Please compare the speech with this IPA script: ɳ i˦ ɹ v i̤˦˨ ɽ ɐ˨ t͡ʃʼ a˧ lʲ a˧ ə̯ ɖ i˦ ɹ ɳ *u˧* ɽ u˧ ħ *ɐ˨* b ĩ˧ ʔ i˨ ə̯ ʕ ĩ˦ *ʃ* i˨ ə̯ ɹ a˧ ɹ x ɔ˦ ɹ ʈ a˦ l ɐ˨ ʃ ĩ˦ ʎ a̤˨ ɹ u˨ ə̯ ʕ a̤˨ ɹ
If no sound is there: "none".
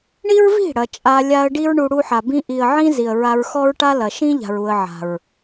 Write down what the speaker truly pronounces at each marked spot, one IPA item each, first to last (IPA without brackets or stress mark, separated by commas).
u˧, a˨, z